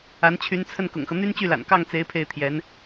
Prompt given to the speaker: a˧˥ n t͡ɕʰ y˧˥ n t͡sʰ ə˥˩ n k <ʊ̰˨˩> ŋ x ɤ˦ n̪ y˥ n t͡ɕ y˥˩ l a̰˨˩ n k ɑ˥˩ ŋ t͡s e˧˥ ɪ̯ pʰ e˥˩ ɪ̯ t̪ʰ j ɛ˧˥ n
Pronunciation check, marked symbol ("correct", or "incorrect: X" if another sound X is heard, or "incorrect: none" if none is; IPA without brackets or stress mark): correct